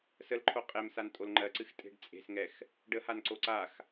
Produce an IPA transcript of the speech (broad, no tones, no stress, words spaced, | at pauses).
səlǃʰo qʼemsan tʼolŋ͡ǃɜǀɨx tʼe̤ɖt͡sʼe̤sŋɛx | ɖəhanǀo ǀax